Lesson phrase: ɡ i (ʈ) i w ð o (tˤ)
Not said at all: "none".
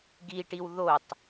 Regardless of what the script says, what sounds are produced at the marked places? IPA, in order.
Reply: ʈ, tˤ

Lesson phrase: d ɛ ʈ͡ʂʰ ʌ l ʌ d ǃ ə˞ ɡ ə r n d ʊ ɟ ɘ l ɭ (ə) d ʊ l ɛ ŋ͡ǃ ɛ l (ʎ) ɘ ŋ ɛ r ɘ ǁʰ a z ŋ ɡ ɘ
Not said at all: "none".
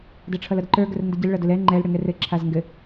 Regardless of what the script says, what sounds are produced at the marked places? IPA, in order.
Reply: ʌ, ɽ

